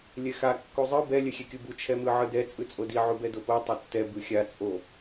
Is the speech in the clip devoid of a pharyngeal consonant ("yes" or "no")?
no